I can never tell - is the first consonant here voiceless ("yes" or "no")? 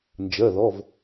no